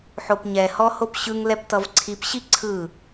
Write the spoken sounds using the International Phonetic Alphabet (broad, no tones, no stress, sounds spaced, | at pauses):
ħ o p ɲ ɛ h ɔ h o p ɕ ɯ ŋ l ɛ p t ʌ v ǀʰ i p ɕ i ǀʰ ɯ